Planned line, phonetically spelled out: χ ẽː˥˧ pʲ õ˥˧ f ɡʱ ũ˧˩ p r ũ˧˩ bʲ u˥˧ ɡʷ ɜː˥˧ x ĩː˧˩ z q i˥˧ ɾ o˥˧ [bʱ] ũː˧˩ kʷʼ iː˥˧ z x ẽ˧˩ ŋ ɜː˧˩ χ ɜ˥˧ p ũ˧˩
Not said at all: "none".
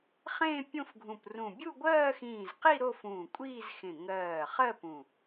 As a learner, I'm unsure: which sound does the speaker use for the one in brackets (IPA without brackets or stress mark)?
f